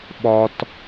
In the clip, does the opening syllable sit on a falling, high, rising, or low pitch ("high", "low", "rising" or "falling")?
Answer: high